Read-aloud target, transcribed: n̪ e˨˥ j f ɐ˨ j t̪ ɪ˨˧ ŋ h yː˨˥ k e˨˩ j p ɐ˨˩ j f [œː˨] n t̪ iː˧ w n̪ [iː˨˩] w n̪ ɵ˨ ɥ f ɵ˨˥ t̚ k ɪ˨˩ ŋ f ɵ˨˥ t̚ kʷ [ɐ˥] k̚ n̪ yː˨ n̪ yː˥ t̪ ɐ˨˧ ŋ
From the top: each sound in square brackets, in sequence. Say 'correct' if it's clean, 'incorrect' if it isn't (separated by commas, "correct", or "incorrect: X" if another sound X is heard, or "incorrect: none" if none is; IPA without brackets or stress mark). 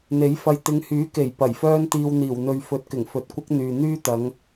incorrect: œː˥, correct, correct